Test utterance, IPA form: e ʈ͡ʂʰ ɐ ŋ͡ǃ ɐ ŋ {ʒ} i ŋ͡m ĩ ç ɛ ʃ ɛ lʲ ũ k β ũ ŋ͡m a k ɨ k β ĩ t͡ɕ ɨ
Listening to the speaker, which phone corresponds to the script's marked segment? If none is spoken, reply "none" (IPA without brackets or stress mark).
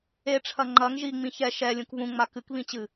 ʒ